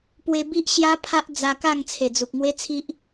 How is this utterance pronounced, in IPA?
p w e˧ b i˦ ʔ ɕ j a˦ pʰ a˦ ʔ d͡z a˧ k a˥˧ ŋ t͡sʰ e˨˩ d͡z u˨ k̚ ŋ w e˦ t͡sʰ i˦ ʔ

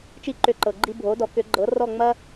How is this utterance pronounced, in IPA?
t͡ʃ i˥ ǃ ʏ˧ ǃ ɤ˩ ɡ͡ǃ i˧ bʱ o˩˥ d ɔ˩˥ k ʏ˩˥ ɡ͡ǃ ɤ˩˥ r ɔ˥˩ ŋ͡m ɐ˥

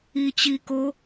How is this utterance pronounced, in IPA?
i t͡ɕ i k o

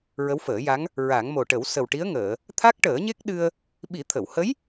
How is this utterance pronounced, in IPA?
ɹ ə˧˥ w f əː˨˩˦ j a˧˥ ŋ | ɹ a˨˩˦ ŋ m o˨˩ ʈ ə˨˩˦ w s ə˨˩ w ʈ i˧˥ ə̯ ŋ əː˨˩˨ | t̪ʰ a˦˥ k̚ ʈ əː˨˩˦ ɲ e˦˥ k̚ ɗ ɨ˧ ə̯ | ɓ i˨˩˦ t̪ʰ ə˨˩˨ w h ə˧˥ j

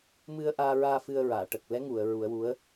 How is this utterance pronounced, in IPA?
m ɨ˧ ə̯ ʔ aː˧ ɹ aː˧ f ɨ˧ ə̯ ɹ aː˨˩˨ ʈ ə˨˩ k̚ l ɛ˧˥ ŋ u˨˩˨ ə̯ ɹ u˨˩˦ ə̯ w u˧˥ ə̯

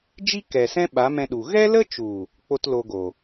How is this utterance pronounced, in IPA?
d͡ʒ i˦ k ɛ˨ s ɛ̃˦ ɓ a˨˦ m ɛ̃˧ ɗ u˨ ɣ ɛ˦ l ə˦ t͡ʃ u˨ | k͡p o˦ t l o˧ ɡ o˨

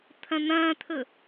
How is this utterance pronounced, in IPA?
t̪ʰ ɐ̃ n̪ ɐ̃ː t̪ʰ ɵ

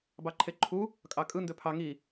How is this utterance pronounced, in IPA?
b ɑ ǃʰ e ǃʰ u | kʼ ɑ kʼ ɯ n d ø pʰ ɑ ŋ i

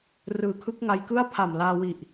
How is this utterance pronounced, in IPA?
r ɯː˨˩ kʰ ɯ˦˥ k̚ ŋ a˧ j k ɯ˥˩ a̯ pʰ a˨˩ m l aː˧ w i˨˩ ʔ

